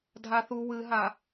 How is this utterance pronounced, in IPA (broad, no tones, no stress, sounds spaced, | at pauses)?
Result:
dʱ a θ u w ɨ ɦ a